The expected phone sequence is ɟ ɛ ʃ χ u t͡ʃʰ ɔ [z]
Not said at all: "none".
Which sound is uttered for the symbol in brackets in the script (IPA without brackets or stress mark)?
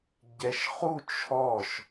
ʃ